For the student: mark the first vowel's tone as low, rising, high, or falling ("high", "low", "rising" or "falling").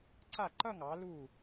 falling